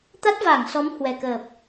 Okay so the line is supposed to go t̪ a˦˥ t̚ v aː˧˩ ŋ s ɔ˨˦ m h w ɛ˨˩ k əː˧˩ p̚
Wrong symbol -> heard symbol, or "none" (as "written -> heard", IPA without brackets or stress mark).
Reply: əː˧˩ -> əː˨˩